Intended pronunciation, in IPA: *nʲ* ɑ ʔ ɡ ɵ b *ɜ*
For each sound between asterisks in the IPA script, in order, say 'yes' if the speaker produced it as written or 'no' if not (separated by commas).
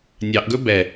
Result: yes, no